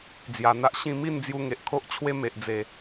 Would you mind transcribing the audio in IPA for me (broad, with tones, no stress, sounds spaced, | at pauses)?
d͡z j a˨˩ n̪ a˦ ʔ ɕ ĩ˥˧ m i˥˧ n d͡z j u˧ ŋ e˨ ʔ kʰ o˦ ʔ t͡ɕʰ w e˦ m e˨ ʔ d͡z e˨˩